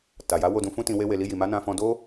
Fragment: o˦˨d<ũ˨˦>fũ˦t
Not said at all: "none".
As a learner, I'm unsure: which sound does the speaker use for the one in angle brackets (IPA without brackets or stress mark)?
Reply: ũ˨˦